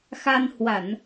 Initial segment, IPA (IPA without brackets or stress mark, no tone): x